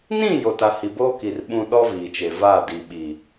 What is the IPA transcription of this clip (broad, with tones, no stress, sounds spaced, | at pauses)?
n ĩ˦˨ j o˨ t a˨ h i˨ b oː˦ k i˨ r ɓ ũ˨ ɗ ɔ˦ v iː˨ t͡ʃ e˨ v a˦˨ d i˨ ɓ i˨